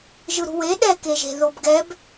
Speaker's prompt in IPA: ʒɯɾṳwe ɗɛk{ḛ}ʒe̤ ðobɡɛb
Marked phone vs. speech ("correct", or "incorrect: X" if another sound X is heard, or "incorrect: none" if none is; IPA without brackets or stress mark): incorrect: e